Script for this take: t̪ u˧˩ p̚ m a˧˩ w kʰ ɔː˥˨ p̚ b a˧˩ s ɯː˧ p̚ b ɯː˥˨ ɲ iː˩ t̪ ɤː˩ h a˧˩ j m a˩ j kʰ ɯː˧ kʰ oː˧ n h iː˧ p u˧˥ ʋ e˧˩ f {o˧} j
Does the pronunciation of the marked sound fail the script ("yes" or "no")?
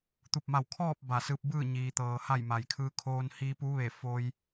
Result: no